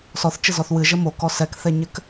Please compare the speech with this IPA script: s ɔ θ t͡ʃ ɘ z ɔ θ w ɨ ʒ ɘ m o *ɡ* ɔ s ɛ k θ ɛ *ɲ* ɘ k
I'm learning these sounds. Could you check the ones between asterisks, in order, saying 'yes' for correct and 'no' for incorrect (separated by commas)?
no, yes